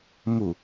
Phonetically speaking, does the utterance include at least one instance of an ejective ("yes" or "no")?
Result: no